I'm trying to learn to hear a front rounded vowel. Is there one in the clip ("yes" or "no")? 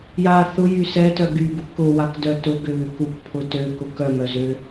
yes